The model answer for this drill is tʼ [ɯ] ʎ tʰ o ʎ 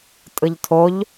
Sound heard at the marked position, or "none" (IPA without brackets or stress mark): ɯ